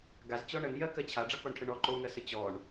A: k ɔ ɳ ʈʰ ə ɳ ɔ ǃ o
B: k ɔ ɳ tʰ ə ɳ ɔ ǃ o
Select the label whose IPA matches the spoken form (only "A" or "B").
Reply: A